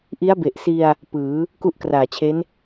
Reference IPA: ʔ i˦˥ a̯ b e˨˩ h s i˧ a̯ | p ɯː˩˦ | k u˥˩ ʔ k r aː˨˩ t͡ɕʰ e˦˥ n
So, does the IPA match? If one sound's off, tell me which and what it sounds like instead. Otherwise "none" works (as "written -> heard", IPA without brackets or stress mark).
h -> ʔ